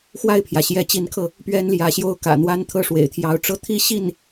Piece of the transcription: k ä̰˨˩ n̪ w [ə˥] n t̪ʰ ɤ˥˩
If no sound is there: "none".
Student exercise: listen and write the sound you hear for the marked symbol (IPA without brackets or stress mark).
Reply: a˥